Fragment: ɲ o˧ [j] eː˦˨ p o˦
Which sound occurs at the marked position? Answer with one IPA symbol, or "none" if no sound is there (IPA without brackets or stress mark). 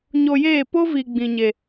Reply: j